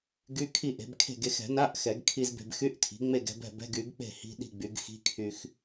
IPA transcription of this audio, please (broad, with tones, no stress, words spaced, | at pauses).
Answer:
ɡy˧˥˧kʰi˥˩ʔe̤˩˥b kʰe̤˥˩ɡe˧x ɛ̤˨˩˦na˧˥˧ʔ xɛ˨˩˦ɡkʰi˧z be̤˧bxy˧˥˧ʔtʰi̤˩˥ ŋ͡me˥˩ɡɛ̤˧bɛ̤˥˩bɛ̤˧˥˧ɡ y˩˥ɡk͡pe̤˥˩ hi̤˧˥˧ɗi̤˥˩ ɡ͡by˩˥ɡ xi̤˧˥˧ kʰy˧x